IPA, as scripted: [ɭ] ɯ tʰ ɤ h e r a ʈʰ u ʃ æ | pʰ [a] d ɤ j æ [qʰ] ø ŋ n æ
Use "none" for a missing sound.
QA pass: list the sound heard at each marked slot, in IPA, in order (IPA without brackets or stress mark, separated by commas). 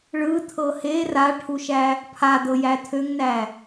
ɭ, a, tʰ